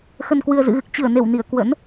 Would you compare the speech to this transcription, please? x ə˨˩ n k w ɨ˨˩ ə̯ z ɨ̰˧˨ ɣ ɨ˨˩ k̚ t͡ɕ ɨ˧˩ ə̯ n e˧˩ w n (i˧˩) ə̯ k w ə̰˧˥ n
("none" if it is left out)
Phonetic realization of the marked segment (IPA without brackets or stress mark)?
i˧˩